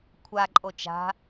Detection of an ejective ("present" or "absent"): present